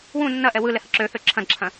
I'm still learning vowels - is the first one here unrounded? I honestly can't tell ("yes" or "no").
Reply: no